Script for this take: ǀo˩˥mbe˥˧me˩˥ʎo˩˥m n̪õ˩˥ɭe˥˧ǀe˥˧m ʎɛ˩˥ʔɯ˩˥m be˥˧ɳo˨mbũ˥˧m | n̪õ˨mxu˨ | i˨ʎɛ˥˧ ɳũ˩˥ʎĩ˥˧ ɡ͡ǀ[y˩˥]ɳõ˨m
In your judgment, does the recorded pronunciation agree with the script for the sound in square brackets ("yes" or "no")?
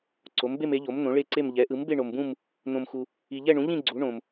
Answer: no